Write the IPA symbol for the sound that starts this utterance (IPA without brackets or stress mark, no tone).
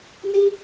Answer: n